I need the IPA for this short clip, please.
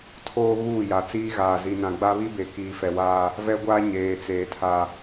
tʰ oː˦ ɣ uː˦˨ j a˨ t͡s iː˦ ɣ aː˨ z i˨ n ã˨ ɡ͡b a˦ β i˦ b e˨ k iː˨ f ɛ˨ w aː˦ | v ɛ˦ ɡʷ aː˦ ɲ eː˨ t͡s eː˨ tʰ a˨

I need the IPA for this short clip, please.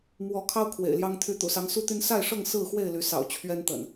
m w ɔ˨˦ kʰ ɑ˦ ʊ̯ kʰ w ḛ˨˩ ɪ̯ l j ɑ˦ ŋ t̪ʰ y˨˦ t̪ ṵ˨˩ s ɑ˨˦ ŋ s u˦ t̪ y˦ n s a˥˨ ɪ̯ ʂ ɤ˥˨ ŋ s ɹ̩˥˨ x w e˥˨ ɪ̯ l y˨˦ s ɑ̰˨˩ ʊ̯ t͡ɕʰ ɥ ɛ˦ n t̪ ə̰˨˩ n

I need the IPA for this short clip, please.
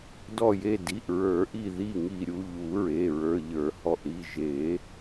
d ɔ˧˩ j e˧˩ d i˩˧˩ ʔ ɹ ə˞˨˩˦ ʔ i˧˩ ð i˧˩ ŋ i˧˩ ɾʲ u˩˧˩ ʎ u˨˩˦ ɹ e˩˧˩ ɹ ə˞˩˧˩ ʎ ə˞˨˩˦ h ɔ˧˩ ʔ ɾ i˩˧˩ ʒ e˨˩˦

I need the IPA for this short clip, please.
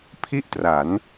pʰ i˥˩ ʔ t r a˩˦ n

